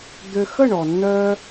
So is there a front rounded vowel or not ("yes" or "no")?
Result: yes